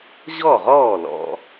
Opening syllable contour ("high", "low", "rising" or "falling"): falling